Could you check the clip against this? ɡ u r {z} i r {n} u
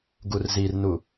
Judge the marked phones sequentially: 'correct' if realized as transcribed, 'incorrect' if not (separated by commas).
correct, correct